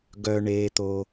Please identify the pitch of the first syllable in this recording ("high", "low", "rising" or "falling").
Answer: high